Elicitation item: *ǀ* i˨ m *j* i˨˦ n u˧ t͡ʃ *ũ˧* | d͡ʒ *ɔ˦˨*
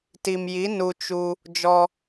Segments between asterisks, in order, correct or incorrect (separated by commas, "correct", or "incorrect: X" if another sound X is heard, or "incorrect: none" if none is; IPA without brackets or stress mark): incorrect: t, correct, incorrect: u˧, incorrect: ɔ˧